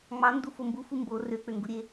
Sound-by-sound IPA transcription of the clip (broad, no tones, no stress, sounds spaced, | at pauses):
ŋ͡m ɑ n d u f o m b u f u m b o r ø k͡p ø ŋ ɡ u ɾʲ e